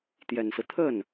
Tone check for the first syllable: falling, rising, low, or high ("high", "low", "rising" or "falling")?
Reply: low